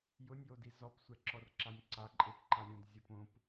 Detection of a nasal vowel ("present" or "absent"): present